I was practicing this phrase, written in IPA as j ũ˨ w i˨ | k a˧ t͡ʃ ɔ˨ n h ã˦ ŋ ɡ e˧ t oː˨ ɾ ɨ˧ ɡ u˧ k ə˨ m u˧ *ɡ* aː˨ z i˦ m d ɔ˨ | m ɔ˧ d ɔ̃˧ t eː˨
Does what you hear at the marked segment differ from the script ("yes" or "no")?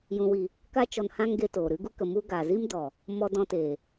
no